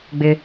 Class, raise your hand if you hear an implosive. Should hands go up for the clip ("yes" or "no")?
no